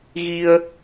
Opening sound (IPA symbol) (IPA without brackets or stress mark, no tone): ɣ